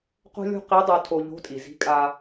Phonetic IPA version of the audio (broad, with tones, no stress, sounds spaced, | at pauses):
q o̤˥ lʲ o̤˥ q i˧˥ dˤ o˧ tʰ o˧ ʎ o̤˧˥ tʼ i˩ z i̤˧˥ kʼ a˧